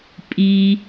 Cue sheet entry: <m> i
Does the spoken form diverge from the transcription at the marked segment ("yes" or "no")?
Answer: yes